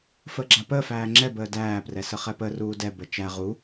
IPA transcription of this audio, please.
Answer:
f əː ɡ͡ǁ a p əː f æː ŋ͡ǁ ɛ b əː d æː p r ɛ s ə χ ɛ p ə r uː d ɛ b ə t͡ʃ æ ʁ u

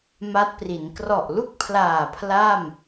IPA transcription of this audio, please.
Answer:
m a˦˥ t̚ p r i˩˦ n k r ɔ˨˩ ʔ l u˥˩ k̚ pʰ l aː˨˩ pʰ l a˥˩ m

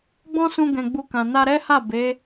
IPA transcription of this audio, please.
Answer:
ɡ͡b ɔ̃˦ s ũ˧ ɡ ɛ̃˧ ɡ͡b u˧ k ã˨ n a˧ ɾ ɛ˦ h a˦˨ b e˨˦

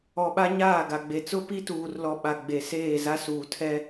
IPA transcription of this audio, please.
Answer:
ɔ˨ ɓ a˦ ɲ aː˦˨ ɡ a˨ ɡ͡b e˨ t͡s ʊ˦ p i˦ t uː˨ r l ɔ˨ ɓ a˨ ɡ͡b e˨ s eː˦˨ z a˦ s uː˨ tʰ ɛ˦

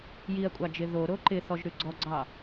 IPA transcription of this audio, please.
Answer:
j i ɐ̯ kʷʼ ɑ d͡ʒ ɪ ð o ɾ o ǃ ɪ θ ɔ ʒ ɾ ʉ ɡ͡ǀ ɔ ɡ͡ǀ ɑ

